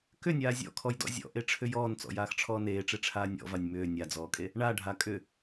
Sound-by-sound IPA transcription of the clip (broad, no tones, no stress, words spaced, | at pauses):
kʏnʲaː zʲɔ̰kʰɔjdɔ̰ zʲɔ̰ʔeʈ͡ʂʰʏ jɔːnt͡sɔ̰jaːxʈ͡ʂʰɔː neːʈ͡ʂeʈ͡ʂʰaː nʲɔ̰vanʲ mʏː nʲad͡zɔːkʼe | ɳaɖʱa kʼʏ